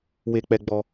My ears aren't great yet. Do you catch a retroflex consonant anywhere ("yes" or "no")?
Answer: no